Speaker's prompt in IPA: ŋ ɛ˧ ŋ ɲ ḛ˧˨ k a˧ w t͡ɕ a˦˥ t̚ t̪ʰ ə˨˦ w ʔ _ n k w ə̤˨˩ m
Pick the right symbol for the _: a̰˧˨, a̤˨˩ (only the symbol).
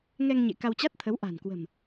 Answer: a̤˨˩